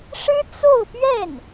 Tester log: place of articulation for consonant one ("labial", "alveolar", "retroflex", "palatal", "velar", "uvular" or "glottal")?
retroflex